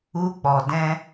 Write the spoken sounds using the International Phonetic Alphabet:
u˧k͡pɔ˨dɛ̃˧

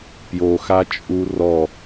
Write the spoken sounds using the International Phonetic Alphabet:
pjoxat͡ʃʼu rɔ

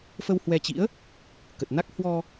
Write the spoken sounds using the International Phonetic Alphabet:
fə˧whwɛ˧t͡ɕḭ˧˥ə̯ | kə˨˩t̚ na˦˥k̚ hwɔ˧

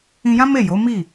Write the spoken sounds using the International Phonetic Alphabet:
ĩ˧jã˦me˦˨ jo˨˦mi˦˨

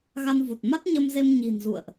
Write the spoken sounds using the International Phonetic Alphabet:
ɣa˧nvu˨˩t̚ ma˦˥t̚ɲə˧mze˧m ɲi̤˨˩nzṵ˧˨ə̯ʔ

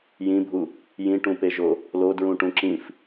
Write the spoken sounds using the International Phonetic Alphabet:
jĩbʱu | jĩʈũpeʒo | lodɹũʈũ ǁĩf

